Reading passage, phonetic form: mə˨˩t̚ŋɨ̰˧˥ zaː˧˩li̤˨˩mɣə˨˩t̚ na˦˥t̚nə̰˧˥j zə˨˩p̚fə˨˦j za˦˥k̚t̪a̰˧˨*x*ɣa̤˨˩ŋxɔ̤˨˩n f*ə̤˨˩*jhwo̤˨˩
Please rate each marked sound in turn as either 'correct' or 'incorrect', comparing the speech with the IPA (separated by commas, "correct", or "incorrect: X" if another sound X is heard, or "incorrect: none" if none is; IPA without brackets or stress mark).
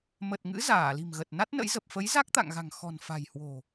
incorrect: ŋ, incorrect: a̤˨˩